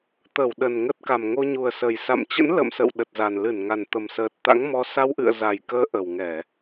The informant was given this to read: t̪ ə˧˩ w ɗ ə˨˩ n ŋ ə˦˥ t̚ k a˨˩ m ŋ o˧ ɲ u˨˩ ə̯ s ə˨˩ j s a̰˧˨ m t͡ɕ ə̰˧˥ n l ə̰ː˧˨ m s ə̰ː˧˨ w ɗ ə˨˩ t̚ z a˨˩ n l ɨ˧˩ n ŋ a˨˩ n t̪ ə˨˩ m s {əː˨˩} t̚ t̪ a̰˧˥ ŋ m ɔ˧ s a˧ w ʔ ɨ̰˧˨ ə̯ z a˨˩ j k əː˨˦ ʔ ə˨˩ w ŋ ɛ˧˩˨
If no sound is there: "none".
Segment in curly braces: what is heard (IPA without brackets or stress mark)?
əː˨˩